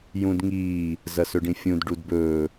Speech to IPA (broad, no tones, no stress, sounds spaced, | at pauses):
j ũ d ŋ iː | z ɐ s ɵ ɖ ĩ fʲ ũ d ɖ u d b ɵː